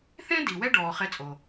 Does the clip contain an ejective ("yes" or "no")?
yes